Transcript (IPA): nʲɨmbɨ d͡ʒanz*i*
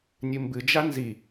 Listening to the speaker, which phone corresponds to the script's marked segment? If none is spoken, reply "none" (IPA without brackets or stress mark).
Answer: i